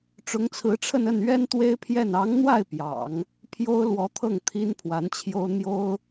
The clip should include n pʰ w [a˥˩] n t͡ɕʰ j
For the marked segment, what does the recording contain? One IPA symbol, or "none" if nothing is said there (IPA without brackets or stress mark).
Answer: a˧˥